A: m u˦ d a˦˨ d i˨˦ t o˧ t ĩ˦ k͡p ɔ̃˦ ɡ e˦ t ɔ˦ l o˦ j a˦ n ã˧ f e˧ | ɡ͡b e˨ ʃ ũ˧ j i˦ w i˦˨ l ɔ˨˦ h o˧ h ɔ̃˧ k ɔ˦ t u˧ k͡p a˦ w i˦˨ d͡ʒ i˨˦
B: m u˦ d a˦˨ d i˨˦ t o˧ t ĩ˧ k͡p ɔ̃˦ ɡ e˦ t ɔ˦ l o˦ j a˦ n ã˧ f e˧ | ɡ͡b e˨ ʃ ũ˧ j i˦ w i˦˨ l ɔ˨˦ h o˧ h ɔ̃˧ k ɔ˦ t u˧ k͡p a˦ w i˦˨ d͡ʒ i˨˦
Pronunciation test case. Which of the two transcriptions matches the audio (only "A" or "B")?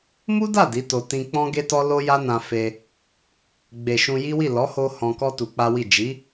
B